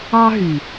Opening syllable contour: high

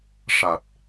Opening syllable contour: low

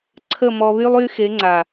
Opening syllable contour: falling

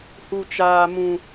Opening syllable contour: low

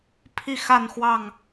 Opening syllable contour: falling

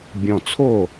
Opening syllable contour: low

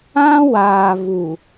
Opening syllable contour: high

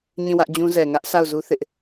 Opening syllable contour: falling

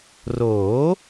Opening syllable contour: rising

